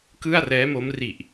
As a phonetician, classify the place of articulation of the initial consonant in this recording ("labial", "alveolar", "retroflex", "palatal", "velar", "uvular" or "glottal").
velar